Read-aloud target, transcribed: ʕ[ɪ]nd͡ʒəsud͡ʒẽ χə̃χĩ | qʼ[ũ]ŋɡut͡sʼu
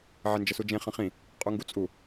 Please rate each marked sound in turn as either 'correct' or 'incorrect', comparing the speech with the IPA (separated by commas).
correct, incorrect